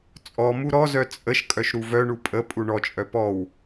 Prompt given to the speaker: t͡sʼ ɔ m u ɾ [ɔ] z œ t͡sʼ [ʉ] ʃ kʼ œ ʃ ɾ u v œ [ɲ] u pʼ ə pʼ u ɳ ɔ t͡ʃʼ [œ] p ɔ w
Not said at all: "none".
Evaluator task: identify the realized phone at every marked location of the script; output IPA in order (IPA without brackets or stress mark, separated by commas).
ɔ, ə, ɳ, œ